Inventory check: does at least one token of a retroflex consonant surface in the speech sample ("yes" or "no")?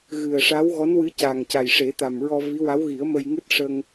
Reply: yes